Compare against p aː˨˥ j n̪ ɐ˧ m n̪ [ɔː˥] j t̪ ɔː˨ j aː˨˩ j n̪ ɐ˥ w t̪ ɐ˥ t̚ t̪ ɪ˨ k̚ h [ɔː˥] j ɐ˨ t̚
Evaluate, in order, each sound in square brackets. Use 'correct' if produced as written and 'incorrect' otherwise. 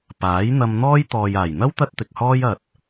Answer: correct, correct

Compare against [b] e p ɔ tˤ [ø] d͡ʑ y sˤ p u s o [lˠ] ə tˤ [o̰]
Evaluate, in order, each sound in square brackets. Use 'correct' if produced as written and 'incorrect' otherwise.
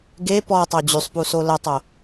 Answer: incorrect: ɡ, correct, incorrect: l, incorrect: o

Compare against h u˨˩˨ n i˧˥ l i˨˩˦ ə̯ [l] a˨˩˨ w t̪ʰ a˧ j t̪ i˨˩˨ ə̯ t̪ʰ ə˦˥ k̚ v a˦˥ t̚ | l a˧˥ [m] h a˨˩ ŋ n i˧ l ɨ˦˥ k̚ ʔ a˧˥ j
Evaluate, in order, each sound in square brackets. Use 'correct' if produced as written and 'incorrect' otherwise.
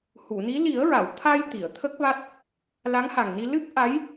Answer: incorrect: ɹ, incorrect: ŋ

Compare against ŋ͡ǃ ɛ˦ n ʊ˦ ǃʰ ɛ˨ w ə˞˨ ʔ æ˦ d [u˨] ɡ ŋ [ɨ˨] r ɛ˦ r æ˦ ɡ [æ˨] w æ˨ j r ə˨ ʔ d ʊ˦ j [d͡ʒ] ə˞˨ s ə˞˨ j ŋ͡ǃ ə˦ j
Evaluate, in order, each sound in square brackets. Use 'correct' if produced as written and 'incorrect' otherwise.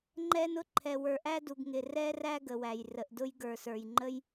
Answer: correct, incorrect: ɪ˨, incorrect: ə˨, incorrect: ɡ

